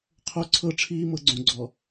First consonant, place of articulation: uvular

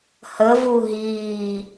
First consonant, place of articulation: glottal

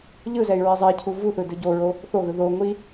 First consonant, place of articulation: palatal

